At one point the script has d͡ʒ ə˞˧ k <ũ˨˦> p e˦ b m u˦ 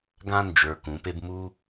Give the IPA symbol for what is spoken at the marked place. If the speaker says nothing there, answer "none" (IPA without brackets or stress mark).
ũ˨˦